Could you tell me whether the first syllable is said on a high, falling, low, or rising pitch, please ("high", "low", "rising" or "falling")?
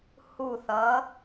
falling